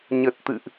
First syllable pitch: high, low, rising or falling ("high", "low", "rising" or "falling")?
low